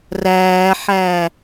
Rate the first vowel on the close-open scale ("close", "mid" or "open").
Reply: open